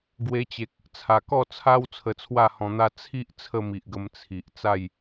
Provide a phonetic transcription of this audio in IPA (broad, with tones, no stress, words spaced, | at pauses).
ɡwe˧t͡ɕe˨k̚ | t͡sʰa˨˩kɔ˥˧t͡sʰa˦w t͡sʰə˧t͡sʰwa˥˧hɔ̃˧n̪a˦ t͡sʰi˦ʔ t͡sʰə˥˧mi˨ʔɡə˧m t͡sʰi˨ʔ t͡sa˥˧j